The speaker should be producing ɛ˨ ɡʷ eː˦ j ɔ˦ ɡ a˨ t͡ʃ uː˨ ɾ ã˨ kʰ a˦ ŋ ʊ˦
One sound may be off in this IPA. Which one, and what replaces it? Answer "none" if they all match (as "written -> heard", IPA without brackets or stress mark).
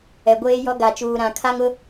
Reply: none